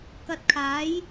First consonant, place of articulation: velar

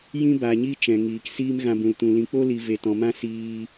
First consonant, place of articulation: palatal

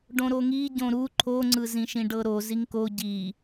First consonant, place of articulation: retroflex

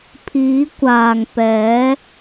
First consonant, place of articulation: labial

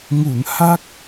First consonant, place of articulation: velar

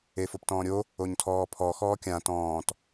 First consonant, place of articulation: labial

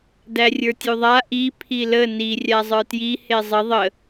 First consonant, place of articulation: alveolar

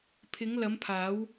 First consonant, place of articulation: labial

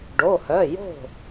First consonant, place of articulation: retroflex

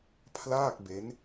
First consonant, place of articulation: labial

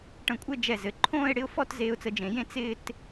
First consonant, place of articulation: retroflex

